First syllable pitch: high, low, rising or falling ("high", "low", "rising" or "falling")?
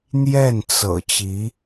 falling